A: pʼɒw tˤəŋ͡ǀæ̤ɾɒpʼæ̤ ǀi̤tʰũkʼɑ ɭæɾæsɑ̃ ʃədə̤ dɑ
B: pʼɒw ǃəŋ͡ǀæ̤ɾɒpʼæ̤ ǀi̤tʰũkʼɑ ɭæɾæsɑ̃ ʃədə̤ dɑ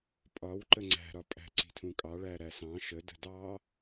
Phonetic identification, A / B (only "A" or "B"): B